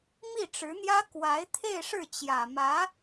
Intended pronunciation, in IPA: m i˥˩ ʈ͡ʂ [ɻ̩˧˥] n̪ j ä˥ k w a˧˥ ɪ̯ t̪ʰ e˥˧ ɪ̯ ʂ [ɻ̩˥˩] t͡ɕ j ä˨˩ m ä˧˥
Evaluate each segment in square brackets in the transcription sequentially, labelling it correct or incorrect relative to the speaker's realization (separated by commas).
correct, correct